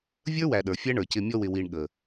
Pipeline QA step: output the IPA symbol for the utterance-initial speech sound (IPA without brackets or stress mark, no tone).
vʲ